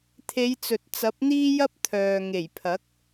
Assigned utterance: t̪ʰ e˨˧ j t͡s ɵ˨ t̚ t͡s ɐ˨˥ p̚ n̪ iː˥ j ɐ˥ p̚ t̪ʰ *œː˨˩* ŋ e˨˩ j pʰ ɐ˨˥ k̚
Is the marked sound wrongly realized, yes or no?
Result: yes